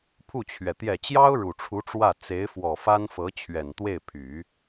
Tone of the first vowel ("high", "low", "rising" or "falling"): falling